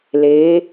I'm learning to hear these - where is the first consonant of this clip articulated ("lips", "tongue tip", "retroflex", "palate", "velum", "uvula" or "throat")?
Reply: tongue tip